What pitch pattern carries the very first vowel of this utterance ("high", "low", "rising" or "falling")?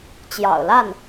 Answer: low